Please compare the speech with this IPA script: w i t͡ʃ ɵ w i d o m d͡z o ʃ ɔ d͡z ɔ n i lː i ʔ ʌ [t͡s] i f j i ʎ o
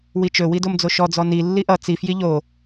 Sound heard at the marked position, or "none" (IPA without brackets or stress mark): t͡s